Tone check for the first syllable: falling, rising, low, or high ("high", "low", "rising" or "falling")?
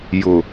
low